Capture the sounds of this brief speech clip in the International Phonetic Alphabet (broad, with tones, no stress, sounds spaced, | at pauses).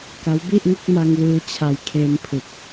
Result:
k a˦˥ w b i˥˩ ʔ ŋ o˥˩ k̚ m a˧ ŋ w ɯː˦˥ t͡ɕʰ a˧ j kʰ eː˧ m pʰ ɯ˨˩ k̚